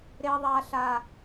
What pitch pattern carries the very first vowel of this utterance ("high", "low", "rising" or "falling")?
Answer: low